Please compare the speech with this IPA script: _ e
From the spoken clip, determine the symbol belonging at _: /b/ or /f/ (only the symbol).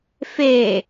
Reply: f